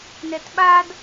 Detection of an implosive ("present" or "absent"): present